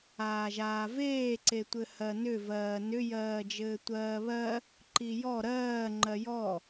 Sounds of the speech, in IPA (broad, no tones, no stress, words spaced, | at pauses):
aːʒaːveː ǀetʷɘhɜnʏ vɜːnʏ jɜːd͡ʒɘːtʷɜːβɜ | ǃijɔ ɾɜː ŋ͡ǃɜjɔ